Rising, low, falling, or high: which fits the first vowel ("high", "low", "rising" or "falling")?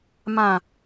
low